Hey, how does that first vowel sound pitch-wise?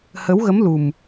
rising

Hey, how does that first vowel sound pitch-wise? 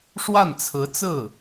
falling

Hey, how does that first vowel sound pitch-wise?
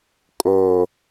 low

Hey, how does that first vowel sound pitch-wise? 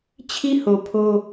high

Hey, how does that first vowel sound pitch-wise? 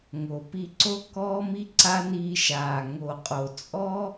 low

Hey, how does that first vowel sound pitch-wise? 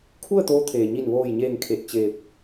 falling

